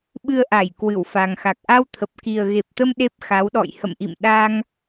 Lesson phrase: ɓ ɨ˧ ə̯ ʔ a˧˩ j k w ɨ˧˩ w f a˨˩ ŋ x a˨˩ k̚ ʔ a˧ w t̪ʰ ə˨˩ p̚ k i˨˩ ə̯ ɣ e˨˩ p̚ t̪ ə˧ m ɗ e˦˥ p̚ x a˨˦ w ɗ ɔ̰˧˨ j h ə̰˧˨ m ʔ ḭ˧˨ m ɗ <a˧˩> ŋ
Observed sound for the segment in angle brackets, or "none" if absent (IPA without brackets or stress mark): a˧